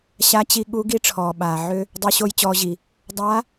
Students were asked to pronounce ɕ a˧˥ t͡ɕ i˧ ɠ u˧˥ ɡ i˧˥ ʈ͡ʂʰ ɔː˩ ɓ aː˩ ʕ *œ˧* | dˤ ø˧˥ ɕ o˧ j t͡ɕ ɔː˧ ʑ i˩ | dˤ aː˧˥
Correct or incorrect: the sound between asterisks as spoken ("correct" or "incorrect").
incorrect